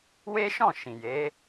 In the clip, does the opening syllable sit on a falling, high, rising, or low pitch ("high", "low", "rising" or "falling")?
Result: high